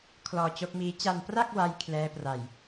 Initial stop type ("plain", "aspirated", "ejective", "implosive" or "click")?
aspirated